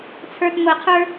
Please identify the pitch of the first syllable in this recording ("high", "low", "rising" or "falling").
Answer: low